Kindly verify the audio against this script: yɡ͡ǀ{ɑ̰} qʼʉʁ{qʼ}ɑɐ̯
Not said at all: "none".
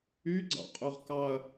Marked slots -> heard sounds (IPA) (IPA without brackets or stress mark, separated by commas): ɑ̰, k